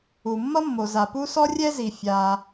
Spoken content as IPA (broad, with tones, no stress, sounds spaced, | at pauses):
u˩ mː ʌ˥ mː o˩ z a˩ p u˥ s ɔ˥ rʲ ɛ˥ z i˩ fʲ a˩